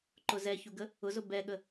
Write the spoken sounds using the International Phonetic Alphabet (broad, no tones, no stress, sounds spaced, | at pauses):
ǃ ʊ z ɛ ç u ɡ ə | ʊ z ʊ b ɛ ɠ ə